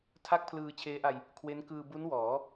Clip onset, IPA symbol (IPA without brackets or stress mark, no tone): tʰ